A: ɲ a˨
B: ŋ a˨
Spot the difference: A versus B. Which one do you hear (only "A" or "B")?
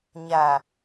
A